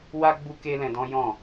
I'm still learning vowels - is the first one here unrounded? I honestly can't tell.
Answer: yes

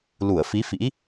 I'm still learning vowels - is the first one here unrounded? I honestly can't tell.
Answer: no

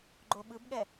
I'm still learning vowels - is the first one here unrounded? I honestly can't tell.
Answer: no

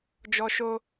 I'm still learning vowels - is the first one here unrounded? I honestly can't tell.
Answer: no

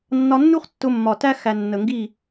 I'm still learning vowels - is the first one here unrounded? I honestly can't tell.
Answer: no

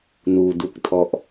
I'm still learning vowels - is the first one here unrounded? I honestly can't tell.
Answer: no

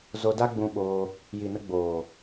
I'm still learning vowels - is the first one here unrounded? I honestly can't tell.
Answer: no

